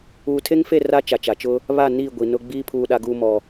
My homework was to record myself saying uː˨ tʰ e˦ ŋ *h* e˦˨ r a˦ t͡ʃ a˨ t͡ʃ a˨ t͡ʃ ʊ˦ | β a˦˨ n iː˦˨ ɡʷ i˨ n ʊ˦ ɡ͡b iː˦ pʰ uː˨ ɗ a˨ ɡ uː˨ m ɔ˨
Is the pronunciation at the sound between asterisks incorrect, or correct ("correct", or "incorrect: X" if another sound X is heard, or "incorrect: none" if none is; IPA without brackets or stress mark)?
incorrect: f